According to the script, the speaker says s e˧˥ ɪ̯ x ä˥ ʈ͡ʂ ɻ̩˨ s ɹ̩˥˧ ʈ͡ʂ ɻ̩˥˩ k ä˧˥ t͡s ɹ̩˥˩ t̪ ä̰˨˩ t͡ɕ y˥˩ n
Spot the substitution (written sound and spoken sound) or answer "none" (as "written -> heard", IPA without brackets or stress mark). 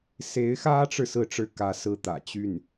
t͡s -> s